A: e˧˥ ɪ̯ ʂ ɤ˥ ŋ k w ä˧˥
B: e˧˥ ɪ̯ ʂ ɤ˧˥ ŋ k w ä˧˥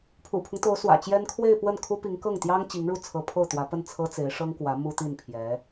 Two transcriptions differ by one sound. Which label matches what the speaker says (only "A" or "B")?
A